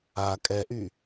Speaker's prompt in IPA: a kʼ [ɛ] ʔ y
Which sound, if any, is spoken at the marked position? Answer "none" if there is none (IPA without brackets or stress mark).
ɛ